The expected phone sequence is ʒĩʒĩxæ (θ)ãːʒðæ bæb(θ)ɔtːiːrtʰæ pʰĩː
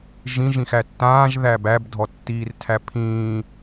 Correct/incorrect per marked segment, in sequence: incorrect, incorrect

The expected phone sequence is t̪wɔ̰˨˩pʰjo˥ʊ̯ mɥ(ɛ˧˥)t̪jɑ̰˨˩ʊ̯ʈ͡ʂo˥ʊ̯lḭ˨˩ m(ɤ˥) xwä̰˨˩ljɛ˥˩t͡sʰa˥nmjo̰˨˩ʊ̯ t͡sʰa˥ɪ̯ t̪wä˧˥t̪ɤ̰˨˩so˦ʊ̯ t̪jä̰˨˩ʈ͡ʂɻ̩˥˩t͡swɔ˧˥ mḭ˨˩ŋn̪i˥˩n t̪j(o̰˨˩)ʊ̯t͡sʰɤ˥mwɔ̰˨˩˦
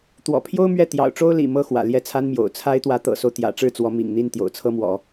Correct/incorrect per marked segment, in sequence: incorrect, correct, correct

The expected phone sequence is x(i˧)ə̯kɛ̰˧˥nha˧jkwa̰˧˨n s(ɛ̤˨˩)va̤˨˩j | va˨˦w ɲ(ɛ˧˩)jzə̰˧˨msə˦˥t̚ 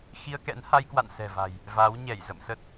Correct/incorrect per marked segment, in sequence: correct, correct, correct

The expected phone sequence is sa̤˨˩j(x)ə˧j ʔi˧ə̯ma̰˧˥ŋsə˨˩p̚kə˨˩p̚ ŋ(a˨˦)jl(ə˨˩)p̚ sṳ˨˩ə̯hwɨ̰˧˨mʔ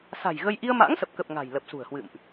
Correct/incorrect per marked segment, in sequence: incorrect, incorrect, correct

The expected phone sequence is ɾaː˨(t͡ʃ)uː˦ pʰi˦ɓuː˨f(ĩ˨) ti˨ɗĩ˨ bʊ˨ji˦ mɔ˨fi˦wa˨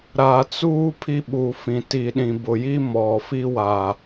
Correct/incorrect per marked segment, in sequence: incorrect, correct

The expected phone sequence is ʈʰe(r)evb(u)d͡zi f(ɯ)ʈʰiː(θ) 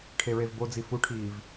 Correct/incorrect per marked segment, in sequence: incorrect, incorrect, incorrect, incorrect

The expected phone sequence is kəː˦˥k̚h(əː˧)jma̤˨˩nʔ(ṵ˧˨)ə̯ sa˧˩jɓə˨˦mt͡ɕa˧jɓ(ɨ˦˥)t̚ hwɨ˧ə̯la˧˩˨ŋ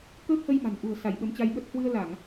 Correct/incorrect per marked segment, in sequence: incorrect, incorrect, incorrect

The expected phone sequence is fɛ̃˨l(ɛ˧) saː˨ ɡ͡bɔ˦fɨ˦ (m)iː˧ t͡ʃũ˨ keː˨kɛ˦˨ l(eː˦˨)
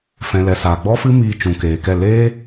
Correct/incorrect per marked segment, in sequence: incorrect, correct, incorrect

